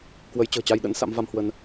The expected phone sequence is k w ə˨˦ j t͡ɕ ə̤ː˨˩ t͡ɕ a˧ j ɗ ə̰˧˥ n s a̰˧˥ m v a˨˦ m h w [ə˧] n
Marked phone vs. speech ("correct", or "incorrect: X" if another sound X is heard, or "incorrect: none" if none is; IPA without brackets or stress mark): correct